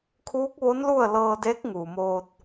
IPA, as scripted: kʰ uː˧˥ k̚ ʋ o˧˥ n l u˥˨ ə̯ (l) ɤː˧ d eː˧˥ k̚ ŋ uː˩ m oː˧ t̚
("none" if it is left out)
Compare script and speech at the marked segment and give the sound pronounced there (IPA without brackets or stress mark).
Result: l